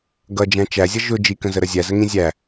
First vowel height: mid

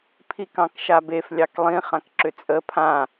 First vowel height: high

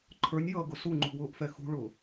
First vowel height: mid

